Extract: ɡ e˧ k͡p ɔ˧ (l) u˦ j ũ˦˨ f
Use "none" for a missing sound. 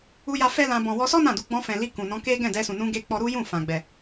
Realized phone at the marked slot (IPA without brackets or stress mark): ɾ